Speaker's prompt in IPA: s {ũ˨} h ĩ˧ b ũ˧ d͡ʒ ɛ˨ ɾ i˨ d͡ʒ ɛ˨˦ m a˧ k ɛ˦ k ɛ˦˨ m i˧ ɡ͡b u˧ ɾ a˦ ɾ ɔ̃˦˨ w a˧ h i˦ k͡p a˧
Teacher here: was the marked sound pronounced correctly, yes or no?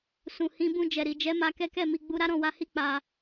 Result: yes